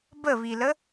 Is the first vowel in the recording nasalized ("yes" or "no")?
no